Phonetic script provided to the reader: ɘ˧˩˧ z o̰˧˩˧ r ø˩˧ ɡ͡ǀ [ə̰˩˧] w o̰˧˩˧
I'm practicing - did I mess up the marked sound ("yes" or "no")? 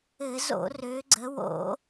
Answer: yes